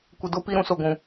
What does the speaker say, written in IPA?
kʷ ɪ˨ d o˦ p i˦ ɾ ũ˦ s o˨ ɡʷ ũ˨

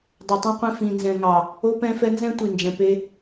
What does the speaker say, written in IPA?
dˤ ɛ˨ tˤ ũ˦ qʷ ɛ̃˦ f ĩ˨ n z ɛ̃˨ ŋ ɑ˨ | o˦ p ɛ̃˦ f ɛ˦ n z ɛ̃˦ tʷ i˨ n d͡ʒ ɛ̃˨ p e˦

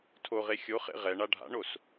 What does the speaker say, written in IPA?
tʰ o ʁ e xʲ o χ ḛ ʁ ɛ ɳ a ɖʱ a̰ ɳ o s

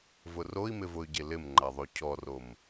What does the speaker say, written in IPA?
v ʊ r o i̯ m ɪ v ʊ y̯ ɟ e l ɪ m ŋ͡ǃ a ðˤ o cʰ ɔ r o m

